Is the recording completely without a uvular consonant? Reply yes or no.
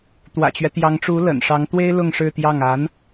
yes